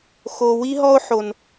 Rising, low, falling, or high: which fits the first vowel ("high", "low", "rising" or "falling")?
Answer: high